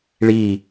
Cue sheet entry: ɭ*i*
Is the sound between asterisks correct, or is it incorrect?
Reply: correct